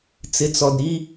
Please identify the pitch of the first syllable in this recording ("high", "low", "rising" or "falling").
low